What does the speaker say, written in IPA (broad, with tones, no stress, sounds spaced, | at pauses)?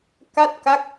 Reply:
k a˥˩ t̚ k a˦˥ k̚